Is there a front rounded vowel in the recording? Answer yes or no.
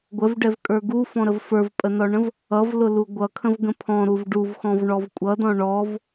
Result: no